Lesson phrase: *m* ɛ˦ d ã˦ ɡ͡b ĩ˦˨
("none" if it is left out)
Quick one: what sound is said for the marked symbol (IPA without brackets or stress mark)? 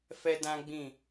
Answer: f